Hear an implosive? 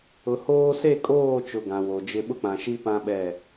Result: yes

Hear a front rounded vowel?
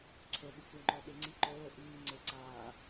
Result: no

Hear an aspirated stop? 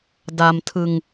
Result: yes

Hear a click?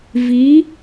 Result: no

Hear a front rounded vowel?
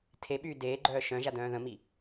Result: yes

